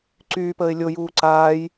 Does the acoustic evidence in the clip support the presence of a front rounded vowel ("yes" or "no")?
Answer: yes